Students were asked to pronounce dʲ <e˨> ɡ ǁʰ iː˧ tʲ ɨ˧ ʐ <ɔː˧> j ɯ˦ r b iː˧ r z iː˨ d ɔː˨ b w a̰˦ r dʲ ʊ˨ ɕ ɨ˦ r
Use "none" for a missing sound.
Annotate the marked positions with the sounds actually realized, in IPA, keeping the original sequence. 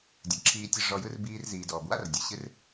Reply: ɨ˨, ɔ˧

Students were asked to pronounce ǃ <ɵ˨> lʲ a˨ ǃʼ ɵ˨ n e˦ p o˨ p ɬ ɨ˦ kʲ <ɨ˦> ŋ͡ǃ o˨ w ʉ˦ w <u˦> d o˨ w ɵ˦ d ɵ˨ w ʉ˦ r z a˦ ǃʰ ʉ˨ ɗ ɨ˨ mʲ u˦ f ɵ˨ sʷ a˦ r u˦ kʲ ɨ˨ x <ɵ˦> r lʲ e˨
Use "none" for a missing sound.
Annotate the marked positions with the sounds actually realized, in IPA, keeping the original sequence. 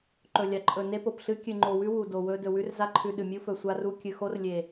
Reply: ɵ˨, ɨ˨, u˨, o˦

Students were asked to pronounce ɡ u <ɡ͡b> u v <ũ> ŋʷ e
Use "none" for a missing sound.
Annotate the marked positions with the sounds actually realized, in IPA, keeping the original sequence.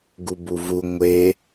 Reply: b, u

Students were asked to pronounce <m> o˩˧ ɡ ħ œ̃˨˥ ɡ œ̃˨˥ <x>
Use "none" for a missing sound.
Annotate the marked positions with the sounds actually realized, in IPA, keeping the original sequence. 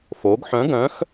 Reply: f, x

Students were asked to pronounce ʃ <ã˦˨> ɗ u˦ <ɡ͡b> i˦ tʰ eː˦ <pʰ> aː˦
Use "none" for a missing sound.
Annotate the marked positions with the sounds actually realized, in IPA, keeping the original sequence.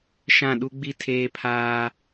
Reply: ã˦˨, ɡ͡b, pʰ

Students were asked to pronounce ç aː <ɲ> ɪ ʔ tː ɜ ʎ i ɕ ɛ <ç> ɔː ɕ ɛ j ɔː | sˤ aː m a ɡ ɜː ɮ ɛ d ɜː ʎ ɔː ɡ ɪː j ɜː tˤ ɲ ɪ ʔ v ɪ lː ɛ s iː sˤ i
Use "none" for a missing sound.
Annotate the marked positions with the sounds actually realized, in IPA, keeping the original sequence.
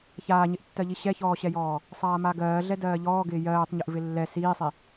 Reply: ɲ, ç

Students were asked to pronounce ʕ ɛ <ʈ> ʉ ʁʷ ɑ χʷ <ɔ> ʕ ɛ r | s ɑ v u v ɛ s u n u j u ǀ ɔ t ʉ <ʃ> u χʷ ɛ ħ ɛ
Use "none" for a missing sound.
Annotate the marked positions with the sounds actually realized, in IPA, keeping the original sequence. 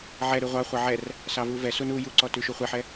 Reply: ɾ, ɑ, ʃ

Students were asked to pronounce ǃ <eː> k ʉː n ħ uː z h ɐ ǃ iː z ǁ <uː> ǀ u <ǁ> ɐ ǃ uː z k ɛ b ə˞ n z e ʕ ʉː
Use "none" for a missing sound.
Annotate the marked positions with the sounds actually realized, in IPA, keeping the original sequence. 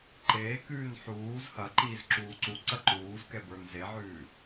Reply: eː, uː, ǀ

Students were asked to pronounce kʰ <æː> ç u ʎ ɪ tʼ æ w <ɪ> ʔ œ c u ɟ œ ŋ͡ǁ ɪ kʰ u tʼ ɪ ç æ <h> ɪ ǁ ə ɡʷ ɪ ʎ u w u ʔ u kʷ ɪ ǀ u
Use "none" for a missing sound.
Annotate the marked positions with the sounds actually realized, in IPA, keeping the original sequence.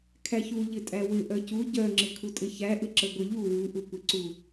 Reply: æ, ɪ, ʔ

